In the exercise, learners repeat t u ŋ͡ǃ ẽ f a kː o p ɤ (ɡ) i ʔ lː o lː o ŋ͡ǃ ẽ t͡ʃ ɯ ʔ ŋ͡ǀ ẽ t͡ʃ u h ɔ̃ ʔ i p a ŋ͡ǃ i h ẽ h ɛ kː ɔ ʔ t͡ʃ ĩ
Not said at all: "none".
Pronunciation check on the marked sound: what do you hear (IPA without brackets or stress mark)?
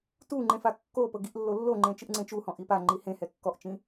ɡ